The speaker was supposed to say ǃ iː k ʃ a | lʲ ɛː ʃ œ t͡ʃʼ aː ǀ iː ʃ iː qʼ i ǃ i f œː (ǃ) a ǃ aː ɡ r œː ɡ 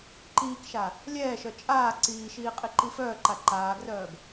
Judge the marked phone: correct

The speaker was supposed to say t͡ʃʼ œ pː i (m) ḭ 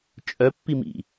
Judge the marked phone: correct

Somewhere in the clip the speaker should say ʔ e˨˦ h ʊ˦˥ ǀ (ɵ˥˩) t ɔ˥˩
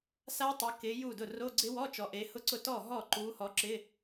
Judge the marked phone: incorrect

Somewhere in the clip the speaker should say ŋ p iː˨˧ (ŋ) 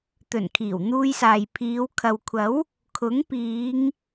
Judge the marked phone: correct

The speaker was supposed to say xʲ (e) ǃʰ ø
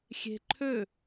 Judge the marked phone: incorrect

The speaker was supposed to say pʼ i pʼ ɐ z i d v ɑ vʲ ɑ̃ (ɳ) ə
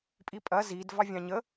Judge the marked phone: incorrect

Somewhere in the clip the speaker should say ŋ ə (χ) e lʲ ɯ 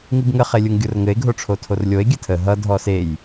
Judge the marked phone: correct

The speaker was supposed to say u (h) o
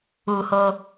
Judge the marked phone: correct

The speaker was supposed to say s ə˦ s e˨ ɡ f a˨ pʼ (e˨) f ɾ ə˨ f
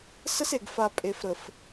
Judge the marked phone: correct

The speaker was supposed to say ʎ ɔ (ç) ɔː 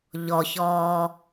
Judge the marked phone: correct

